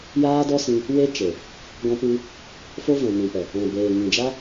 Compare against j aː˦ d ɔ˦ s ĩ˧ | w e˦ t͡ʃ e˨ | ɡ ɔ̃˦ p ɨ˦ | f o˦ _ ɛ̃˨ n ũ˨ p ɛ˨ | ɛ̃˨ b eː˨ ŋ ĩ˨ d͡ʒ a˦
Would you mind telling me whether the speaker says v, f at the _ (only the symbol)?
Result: v